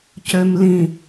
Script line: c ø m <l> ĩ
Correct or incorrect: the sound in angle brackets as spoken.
correct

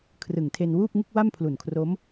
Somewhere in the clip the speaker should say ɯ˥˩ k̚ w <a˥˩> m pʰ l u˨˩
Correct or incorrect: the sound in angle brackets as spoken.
correct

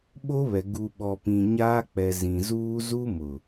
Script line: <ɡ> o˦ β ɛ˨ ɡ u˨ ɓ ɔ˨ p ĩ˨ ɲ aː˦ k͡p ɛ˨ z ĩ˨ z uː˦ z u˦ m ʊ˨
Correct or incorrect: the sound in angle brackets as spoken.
incorrect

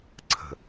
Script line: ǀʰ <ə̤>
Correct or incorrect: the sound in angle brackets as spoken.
correct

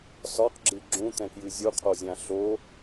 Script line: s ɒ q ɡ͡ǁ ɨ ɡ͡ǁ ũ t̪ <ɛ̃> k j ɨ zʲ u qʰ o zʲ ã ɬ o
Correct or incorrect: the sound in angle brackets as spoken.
correct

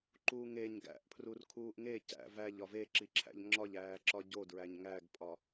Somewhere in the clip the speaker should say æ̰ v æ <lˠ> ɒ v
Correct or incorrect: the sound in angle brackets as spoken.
incorrect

